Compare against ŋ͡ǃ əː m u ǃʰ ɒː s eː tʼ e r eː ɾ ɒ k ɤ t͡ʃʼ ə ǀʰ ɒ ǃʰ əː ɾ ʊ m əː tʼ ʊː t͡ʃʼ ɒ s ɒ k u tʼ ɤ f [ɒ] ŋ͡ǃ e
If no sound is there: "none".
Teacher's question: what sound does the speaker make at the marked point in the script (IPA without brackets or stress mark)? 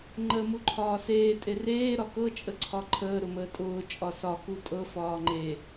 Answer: ɒː